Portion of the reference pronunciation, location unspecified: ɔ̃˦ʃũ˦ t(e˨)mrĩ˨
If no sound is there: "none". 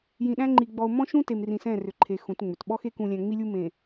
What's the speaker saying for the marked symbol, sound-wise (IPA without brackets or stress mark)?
e˨